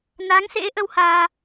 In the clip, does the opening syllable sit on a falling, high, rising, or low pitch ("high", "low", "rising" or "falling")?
rising